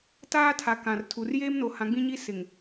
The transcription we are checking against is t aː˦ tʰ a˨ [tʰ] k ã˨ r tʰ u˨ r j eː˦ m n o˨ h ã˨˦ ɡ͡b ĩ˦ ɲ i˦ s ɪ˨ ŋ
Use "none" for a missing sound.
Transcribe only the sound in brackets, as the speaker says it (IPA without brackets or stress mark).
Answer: none